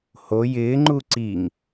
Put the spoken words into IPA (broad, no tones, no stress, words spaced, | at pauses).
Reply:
ho jɪːŋ͡ǃu ǀiŋ